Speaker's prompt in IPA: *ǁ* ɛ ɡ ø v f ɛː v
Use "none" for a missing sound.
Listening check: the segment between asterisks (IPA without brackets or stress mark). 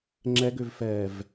ŋ͡ǁ